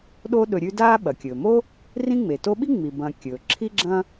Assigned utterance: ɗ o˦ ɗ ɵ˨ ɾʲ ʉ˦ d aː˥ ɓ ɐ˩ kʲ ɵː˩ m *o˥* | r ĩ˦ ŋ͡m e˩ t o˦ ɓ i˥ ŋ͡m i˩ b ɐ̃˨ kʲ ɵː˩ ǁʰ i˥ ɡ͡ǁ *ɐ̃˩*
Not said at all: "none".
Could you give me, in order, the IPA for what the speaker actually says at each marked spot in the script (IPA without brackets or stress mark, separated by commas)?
o˥, ɐ̃˥